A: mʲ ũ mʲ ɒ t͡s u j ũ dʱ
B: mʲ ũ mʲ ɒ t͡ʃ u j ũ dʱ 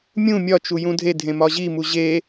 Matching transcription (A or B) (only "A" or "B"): B